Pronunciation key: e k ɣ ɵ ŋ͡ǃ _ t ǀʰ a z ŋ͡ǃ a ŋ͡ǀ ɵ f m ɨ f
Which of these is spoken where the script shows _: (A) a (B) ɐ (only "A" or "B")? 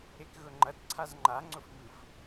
B